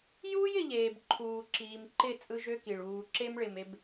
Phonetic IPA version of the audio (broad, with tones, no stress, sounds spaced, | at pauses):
j uː˦ j ɪ˨ ʎ eː˨ b ǃʰ uː˨ ǁ iː˨ m ǃ ɪ˦˨ t͡sʼ ɯ˦ ʒ ø˦ k i˨ ɭ uː˨ ǁ e˦ m ɭ ɪ˨ m e˦ b